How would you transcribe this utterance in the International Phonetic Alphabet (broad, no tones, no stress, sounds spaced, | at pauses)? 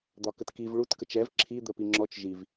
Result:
d̪ ɒ k ə t k i v ɭ u t k ə t͡ʃ ɛ v ǁʰ i d̪ ə p i ŋ͡ǁ ɔ t͡ʃ ʒ i v